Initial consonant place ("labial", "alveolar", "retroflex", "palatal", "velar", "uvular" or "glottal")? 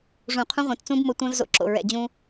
retroflex